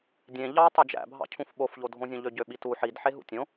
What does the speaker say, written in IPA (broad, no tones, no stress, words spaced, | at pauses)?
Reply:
dʲẽ ʎɑtˤo d͡ʒæ̰bʱɑ̰cʰũf ɓofʎodʱõzʲõ ʎøɟøɓitu ħidħeɦṵ tʲõ